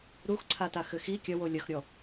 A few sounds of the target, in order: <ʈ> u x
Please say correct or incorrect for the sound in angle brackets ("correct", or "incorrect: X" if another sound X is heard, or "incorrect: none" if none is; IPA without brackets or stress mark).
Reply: incorrect: ɾ